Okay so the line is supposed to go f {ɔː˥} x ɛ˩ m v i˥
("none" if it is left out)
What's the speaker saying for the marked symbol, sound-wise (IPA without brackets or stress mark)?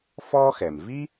ɔː˥